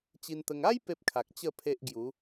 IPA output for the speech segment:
t͡ɕ i˧ n t̪ ə˧ ŋ a˦ j p e˦ p̚ kʰ a˨ k̚ t͡ɕ ə˥˧ pʰ e˦ ʔ ɡ j u˨˦

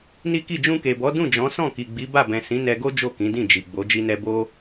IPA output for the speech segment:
n i˦ k i˦˨ d͡ʒ ũ˧ k e˨ b ɔ˨˦ d ũ˦˨ d͡ʒ ɔ̃˨˦ s ɔ̃˦˨ k i˨ ɡ͡b i˨˦ b a˦˨ b ɛ̃˨ s ĩ˨˦ n ɛ˧ ɡ o˦ d͡ʒ o˦˨ k ĩ˨˦ d ĩ˦˨ d͡ʒ i˨ ɡ͡b o˨˦ d͡ʒ i˧ n ɛ˧ b o˦

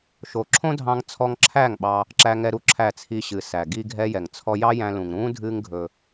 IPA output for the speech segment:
ʃ o˨ ǁʰ õ˦ dʱ ɑ̃˧ ŋ t͡sʰ ɔ˧ ŋ ǁʰ æ˦˨ ŋ ɓ ɑ˧ | ǁ æ˦ ŋ ɛ˦ ɾ u˧ ǁʰ æ˦˨ t͡sʰ i˧ ɕ ɨ˨ s æ˨ ɡ i˧ ɡʱ ɛ˦ j ɛ˨ ŋ t͡sʰ ɔ˦ j ɑ˦ j æ̃˧ l ũ˨ ŋ ɾ ũː˦ dʱ ɨː˦ ŋ ɡʱ ɵ˧

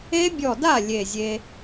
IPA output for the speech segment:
e˦˥ bʲ ɔ˧˩ d a˥˩ lʲ e˧˩ zʲ e˧

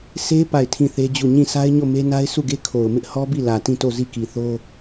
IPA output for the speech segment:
s e˦ p a˦˨ ɪ̯ tʰ ĩ˦˨ θ e˦ d͡ʑ u˦˨ ɲ ĩ˦˨ sʰ a˦ ɪ̯ ɲ o˦˨ m e˦ n a˦ ɪ̯ sʰ u˦˨ ɡ e˦ kʰ o˨ ʊ̯ m ɪ˦ ʔ h ɔ˦ b i˦˨ l ä˨ t ĩ˦˨ t o˦˨ z i˦˨ k i˨ θ o˦

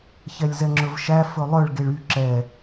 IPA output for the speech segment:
ç ɛ lʲ z ɛ ŋ͡ǁ ɵ v ʃ æ f ɵ lˠ œ ɭ ɡ e ɭ y ǁ ɛ

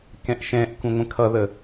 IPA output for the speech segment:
k ɛ̃ ʔ ʃ ɛ̃ ʔ k ũ ŋʷ ə̃ kʰ ʌ ð ə

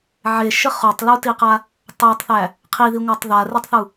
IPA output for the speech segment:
ʕ e ʃ ə χ o tˤ l u t i q a | tˤ a tˤ θ æ | qʰ i ð i ŋʷ æ tˤ ð a r i tˤ θ u

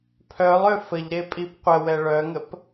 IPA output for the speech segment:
pʰ œ lˠ ø f ə ʎ ɾ e pʼ i p qʷ ə w ɛ ɭ œ ŋ ə p

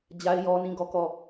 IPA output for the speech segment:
d͡ʑ a˦ ɪ̯ j ɔ˦ n ĩ˦˨ ɡ ɔ˦˨ k ɔ˦˨

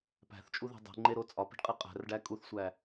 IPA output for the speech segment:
p æ̤ θ t͡ʃʼ u ð i̤ dˤ e̤ ŋ͡ǃ e ɾ o t͡sʼ ɒ p e̤ ɖ qʼ i qʼ æ̤ r ɖ æ kʼ u θ sʷ æ

